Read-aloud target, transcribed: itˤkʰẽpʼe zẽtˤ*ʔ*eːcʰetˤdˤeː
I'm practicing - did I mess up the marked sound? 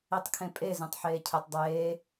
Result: yes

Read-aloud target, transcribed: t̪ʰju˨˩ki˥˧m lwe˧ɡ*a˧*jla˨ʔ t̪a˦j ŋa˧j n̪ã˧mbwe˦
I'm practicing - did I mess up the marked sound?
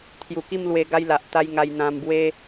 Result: yes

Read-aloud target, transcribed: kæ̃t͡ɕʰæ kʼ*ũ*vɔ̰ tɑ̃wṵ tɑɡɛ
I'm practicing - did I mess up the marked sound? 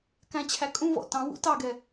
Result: no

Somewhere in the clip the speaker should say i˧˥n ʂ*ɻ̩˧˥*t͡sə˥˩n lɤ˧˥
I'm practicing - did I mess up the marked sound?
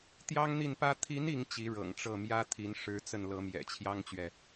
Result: no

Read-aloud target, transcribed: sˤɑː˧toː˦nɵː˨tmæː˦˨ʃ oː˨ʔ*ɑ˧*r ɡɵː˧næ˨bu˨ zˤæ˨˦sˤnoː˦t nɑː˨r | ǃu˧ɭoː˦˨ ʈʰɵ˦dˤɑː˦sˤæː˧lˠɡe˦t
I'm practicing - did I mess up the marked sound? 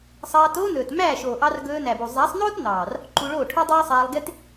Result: no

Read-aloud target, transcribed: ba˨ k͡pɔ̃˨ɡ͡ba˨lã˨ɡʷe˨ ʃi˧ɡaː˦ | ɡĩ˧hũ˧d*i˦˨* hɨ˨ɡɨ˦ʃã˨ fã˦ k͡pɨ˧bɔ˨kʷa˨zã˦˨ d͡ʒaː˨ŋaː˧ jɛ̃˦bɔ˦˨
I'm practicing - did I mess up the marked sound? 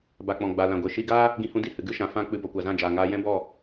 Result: no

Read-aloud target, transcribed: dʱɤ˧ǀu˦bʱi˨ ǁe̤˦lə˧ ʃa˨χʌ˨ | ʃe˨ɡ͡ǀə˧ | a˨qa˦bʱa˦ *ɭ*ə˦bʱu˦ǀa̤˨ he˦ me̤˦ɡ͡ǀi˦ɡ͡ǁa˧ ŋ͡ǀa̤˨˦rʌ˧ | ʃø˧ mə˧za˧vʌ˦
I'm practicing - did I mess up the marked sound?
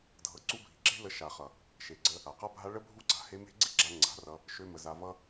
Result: no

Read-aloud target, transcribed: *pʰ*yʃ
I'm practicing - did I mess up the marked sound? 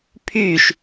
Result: no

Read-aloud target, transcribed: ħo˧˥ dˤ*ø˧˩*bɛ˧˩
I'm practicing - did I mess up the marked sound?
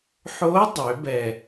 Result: yes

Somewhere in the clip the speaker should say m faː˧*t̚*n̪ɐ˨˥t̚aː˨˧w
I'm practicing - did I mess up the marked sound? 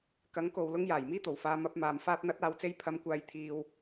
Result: no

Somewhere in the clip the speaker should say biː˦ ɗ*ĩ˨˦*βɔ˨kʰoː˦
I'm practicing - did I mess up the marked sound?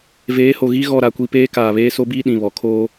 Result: yes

